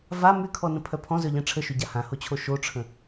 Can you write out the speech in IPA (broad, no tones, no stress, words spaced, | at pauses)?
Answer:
va mykʰɔnə̃ pʰœpʰɔ̃zœʎɛ̃ ʈ͡ʂʰəʃyɟa hãhot͡ɕʰo ʃoʈ͡ʂʰə̃